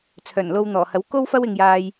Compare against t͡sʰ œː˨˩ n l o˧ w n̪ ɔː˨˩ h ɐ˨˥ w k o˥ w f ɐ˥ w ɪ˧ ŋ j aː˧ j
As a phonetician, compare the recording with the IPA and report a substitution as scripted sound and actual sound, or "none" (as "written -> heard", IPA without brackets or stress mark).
none